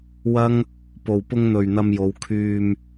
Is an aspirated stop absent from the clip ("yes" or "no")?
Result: no